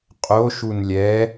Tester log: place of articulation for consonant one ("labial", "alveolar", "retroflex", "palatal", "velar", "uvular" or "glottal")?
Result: uvular